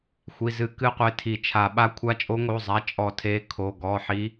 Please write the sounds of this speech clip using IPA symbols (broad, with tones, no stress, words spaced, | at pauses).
xʷi˩˧˩zɨ˨˩˦ kɨ˧˥qʷe˩˧˩ tʰi˨˩˦t͡ʃʰa˨˩˦ ɓa˧˥kʷʰa˧˥t͡ʃʼo˧˥ ŋo˩˧˩zˤa˩˧˩ t͡ʃʼɔ˨˩˦tʰe˩˧˩ kʰo˩˧˩ɡɔ˩˧˩ħi˧˥